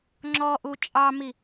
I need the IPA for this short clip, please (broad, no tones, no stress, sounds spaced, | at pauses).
ŋ͡ǁ ɔ ʔ u t͡ʃʼ ɑ m i